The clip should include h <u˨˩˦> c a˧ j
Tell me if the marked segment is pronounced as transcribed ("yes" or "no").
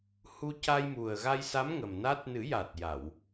no